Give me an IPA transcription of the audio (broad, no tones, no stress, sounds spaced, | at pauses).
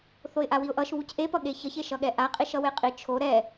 θ o ɪ̯ ʔ a w i ʊ̯ ʔ ʌ ʃ β u c ʔ e p ʌ ɠ e ç ʌ ç e ʃ ʌ ɠ ɛ ʔ a qʼ i ʃ ʌ w e qʼ i t͡ʃʰ o ɾ ɛ